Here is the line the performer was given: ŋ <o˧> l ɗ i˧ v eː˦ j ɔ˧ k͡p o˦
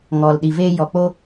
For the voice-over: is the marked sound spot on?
no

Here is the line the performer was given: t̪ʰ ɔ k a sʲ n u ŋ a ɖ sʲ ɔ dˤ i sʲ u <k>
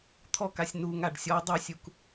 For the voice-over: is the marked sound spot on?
yes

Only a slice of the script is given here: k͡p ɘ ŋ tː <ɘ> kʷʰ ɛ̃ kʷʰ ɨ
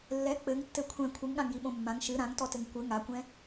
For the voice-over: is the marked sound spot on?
yes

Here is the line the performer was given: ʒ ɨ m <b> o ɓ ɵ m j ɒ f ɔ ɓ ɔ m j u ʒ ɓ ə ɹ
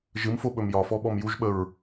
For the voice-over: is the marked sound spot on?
no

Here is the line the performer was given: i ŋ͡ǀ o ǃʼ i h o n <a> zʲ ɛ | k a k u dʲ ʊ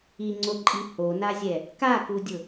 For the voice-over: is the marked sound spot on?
yes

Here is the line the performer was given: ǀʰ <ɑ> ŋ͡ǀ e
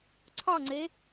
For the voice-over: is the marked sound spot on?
yes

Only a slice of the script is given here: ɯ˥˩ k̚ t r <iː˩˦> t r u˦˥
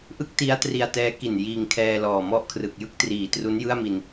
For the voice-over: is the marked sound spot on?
yes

